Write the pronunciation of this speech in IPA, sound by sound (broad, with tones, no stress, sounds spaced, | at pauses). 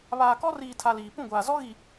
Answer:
β aː˨ k ɔ˦ r iː˨ tʰ a˨ l iː˨ p ũ˦˨ ɡʷ aː˨ z ɔ˦ ɣ i˨